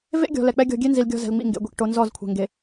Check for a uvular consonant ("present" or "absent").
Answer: absent